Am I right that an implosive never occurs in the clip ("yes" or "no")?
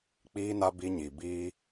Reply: yes